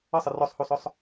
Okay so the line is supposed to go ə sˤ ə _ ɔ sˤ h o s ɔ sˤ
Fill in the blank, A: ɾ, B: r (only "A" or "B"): B